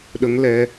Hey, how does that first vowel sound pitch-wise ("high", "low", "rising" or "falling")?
rising